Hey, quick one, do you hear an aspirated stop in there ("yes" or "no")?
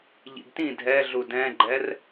no